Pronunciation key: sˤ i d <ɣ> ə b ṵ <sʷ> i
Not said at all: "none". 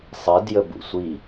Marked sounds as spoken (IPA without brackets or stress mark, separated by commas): j, sʷ